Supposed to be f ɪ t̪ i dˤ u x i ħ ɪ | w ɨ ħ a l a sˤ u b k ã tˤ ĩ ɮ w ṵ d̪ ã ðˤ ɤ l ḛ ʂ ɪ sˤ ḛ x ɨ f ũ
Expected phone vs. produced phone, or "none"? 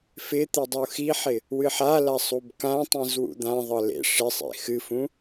ɮ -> z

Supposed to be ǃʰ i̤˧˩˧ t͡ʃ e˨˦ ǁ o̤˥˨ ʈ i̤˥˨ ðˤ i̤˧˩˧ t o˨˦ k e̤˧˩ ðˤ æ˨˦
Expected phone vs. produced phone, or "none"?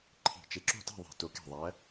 ʈ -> t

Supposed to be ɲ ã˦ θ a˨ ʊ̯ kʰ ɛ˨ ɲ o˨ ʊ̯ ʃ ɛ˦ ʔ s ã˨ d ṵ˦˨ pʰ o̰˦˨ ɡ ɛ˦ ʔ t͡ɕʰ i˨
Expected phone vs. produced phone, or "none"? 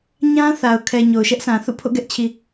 d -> θ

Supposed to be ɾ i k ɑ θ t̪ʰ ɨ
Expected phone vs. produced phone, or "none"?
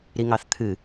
k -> ŋ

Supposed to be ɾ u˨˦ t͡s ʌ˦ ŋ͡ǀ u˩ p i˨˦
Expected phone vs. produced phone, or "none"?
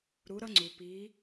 t͡s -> ɾ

